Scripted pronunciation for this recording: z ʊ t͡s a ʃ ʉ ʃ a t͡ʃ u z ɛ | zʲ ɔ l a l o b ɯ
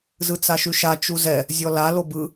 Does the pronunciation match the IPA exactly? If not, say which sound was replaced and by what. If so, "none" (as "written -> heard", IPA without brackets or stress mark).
ʊ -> ɯ